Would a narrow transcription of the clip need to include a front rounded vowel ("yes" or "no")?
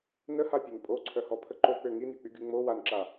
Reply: yes